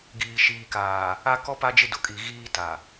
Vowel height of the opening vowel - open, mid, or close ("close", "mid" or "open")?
close